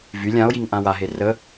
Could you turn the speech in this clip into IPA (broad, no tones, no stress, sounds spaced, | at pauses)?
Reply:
v y lʲ ã o̯ j i ŋ ʔ ã w a ɦ e r ə